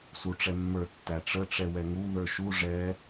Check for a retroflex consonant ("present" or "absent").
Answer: present